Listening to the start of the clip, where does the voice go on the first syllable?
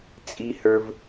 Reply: high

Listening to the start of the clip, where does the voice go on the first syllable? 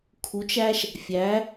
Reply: rising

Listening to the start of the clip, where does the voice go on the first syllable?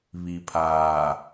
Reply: low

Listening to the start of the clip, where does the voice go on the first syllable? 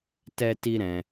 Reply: high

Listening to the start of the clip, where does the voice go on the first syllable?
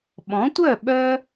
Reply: rising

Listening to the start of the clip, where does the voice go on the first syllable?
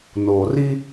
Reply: low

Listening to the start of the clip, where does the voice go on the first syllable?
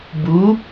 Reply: rising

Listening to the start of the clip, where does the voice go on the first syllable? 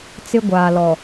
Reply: high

